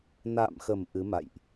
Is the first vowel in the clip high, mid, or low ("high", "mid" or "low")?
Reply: low